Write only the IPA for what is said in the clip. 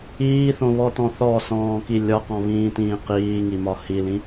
iː θ õ β ɔ t ɔ̃ θ ɔ s ɔ̃ː k i lʲ ɒ q ɔ̃ β ĩː t ĩː q iː ŋ i m ɒ h i l ĩ

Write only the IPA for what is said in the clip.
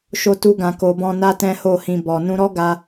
ʃ o˧ t u˧ ɡ ã˧ k o˧ b ɔ̃˦ n a˦ t ɛ̃˦ h o˦˨ h ĩ˧ b ɔ˨ n ũ˧ ɾ ɔ˦ ɡ a˧

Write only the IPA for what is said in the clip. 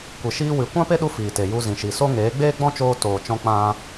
kʷ e˨ ʃ iː˧ w ɨ˨ kʷ ã˦ p e˦ ɗ u˧ f iː˨ t e˨ j u˧ z ĩ˨ ʃ i˨ s o˦ ŋ eː˨˦ ɡ͡b eː˦ ɡ͡b ɔ̃˦ t͡ʃ oː˧ t oː˨ t͡ʃ ɔ̃˧ k͡p ã˦

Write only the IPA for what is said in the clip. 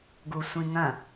ɡ u sʷ ĩ ŋ ɐ̃

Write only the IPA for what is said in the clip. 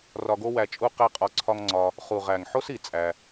r ɒ˧ ɡ o˦ w æ˧ t͡ʃʼ u˦ q æ˦ qʼ ɒ˧ ǀʰ ɒ˦ ŋ ŋ͡ǀ ɒ˧ | χ u˨ ʁ æ˨ ŋ ħ o˦ s i˨ t͡sʼ æ˦

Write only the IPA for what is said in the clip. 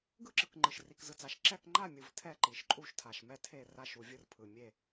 ɡ ɯ˥˨ ǁ ɯ˨ k ŋ͡ǃ ɯ˨ ʃ r i˨ k z ɯ˨ t͡s a˨ ʃ ǁ ɛ˥˨ k ŋ͡ǃ a˥˨ mʲ ɯ˨ v tʰ ɛ˥˨ ǃ i˨ ʃ ǃʼ u˥˨ ʃ tʰ a˨ ʃ m ɛ˥˨ tʰ e˥˨ r a˥˨ ʃ u˨ vʲ ɯ˥˨ r pʰ ɯ˨ mʲ e˥˨

